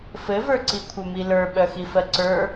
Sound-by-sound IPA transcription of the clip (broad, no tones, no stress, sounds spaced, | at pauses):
f ɘ v ə˞ ǀ i kʷʰ œ m i l ə˞ ɓ œ x i f ɜ ǀ ə˞